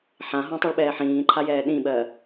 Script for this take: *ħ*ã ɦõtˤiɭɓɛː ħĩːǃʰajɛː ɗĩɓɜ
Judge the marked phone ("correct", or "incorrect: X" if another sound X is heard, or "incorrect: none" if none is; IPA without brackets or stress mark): correct